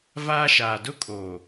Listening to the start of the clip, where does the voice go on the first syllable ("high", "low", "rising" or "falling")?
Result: high